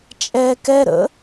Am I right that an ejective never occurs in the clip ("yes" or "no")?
no